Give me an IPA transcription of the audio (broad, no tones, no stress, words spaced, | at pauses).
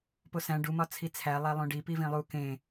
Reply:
posæ̃ ɖumɒ t͡sʰit͡sʰæ lˠælˠõɖi pivĩlˠu kẽ